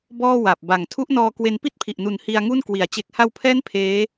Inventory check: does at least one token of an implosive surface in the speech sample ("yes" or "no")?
no